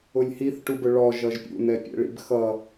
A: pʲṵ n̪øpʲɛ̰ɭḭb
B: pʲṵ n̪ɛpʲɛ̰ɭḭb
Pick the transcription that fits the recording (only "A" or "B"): B